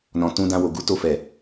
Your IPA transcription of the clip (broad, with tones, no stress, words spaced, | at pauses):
nɔ̃˨tũ˧ dã˧wo˨ɡu˨˦to˦˨ fɛ˨